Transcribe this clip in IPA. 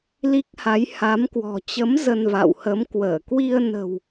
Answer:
l i˦˥ k̚ h a˨˦ j h a˨˦ m k w ɔ̤˨˩ t͡ɕ ə˨˦ m z ə˧ n v a̰˧˨ w h ə˨˦ m k w əː˧˩ k w i˧ ə̯ n ə̤˨˩ w

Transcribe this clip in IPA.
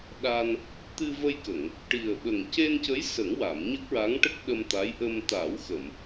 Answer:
ɗ a˧ n | t̪ ɨ˧ v ə˧ j k ə˨˩˨ ŋ | ʈ i˨˩ ə̯ ɓ ə˨˩ ŋ c e˧ n c ə˧˥ j s ə˨˩˦ ŋ w a˨˩˨ m ɲ ə˦˥ k̚ ɹ a˧˥ ŋ ʈ ə˦˥ k̚ ɗ ə˧ m t̪ a˧˥ j ʔ ə˧ m t̪ a˨˩˦ w x ə˨˩˨ m

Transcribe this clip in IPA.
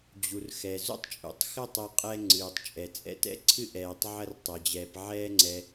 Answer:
d͡ʑ u˩ r x ɛ˩ z ṵ˥ tˤ t͡ʃʼ ṵ˩ tˤ x ɘ˥ tˤ ɛ˧ qʼ ɛ˧ ŋ͡ǀ ɨː˩ tˤ t͡ʃʼ ɛ˩ t͡sʼ ɛ̰˧ t ɛ̰˥ ǀʰ ɨ˥ ʔ ɛː˩ tˤ ʕ ɐ˧ r tˤ ɐ˩ d͡ʑ ɛː˩ p ʕ ɛː˧ ŋ͡ǀ ɛ˩

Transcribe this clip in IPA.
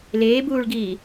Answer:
l eː b uː ɭ ɡ iː

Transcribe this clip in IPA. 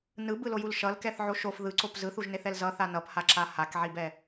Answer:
n ɯ b ɯ l o j u l ʃ ʌ l k ɛ θ ʕ o ʃ o f ð ɯ ǀ o p z ɯ θ u ʒ n e θ ɛ l z ʌ θ a n ʌ p h a ǁ a h a k ʕ i b ɛ

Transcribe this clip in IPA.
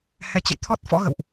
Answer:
h ɛ˧ t͡ɕ ə̰˧˨ j t̪ʰ ɔ˦˥ t̚ f ɔ̰˧˥ ɣ ə̰˧˨ w ʔ

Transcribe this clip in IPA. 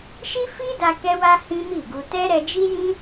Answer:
ʃ i˦ f i˦ d a˧ k ɛ˦ w a˦ h ĩ˦ m i˦˨ ɡ u˧ t ɛ˦ ɾ ɛ˧ d͡ʒ i˦ j ĩ˦

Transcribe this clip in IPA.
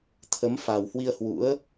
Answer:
t̪ʰ ə˨˦ m f a˨˩ w h w i˧ ə̯ h w ṵ˧˥ ə̯

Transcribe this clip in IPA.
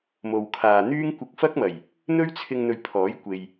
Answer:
m o˨ w kʰ aː˨ n̪ yː˥ ŋ kʷ ɪ˧ k̚ f ɐ˥ k̚ m ɐ˨˩ j | n̪ ɵ˥ ɥ t͡sʰ ɪ˧ ŋ n̪ ɵ˧ ɥ pʰ ɔː˨˥ j kʷ e˨ j

